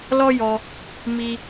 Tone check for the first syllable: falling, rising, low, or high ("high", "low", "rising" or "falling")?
high